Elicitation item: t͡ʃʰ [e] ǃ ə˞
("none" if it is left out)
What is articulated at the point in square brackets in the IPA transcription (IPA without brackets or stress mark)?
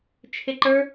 e